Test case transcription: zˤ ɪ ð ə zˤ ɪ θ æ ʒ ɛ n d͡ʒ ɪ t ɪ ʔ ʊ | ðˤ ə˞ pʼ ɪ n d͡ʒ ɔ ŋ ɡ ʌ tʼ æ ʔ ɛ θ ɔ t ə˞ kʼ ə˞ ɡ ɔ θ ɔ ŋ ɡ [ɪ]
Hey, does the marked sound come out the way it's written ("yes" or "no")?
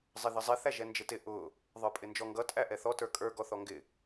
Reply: yes